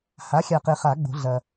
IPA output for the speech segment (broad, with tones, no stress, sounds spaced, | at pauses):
h a˩˥ xʲ a˨ q e˨ χ a˨˩˦ ɡ͡b o̤˨˩˦ ɮ ɐ˨